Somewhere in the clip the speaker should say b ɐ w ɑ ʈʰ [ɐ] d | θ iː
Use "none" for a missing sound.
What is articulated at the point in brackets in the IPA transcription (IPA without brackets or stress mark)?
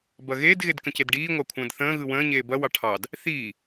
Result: ɑ